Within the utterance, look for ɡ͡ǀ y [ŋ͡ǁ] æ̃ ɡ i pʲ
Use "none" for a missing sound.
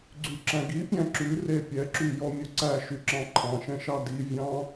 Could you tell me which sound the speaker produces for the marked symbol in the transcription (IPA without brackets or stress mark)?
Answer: ǁ